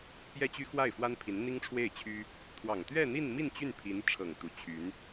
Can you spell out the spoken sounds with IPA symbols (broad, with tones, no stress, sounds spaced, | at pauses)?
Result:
p j ɛ˥ t͡ɕ y˥ x w a˥˩ ɪ̯ f w a˥ n pʰ i˧˥ n n̪ i˥ ŋ ʈ͡ʂʰ w e˥˩ ɪ̯ t͡ɕʰ y˥ | t̪ʰ w ɑ˨˩ ŋ t̪ ɥ ɛ˥˧ n̪ i˥˧ n m i˥˧ n t͡ɕ y˥˩ n pʰ i˧˥ n ʈ͡ʂʰ ɤ˨˩ ŋ t̪ u˧˥ t͡ɕʰ y˧˥ n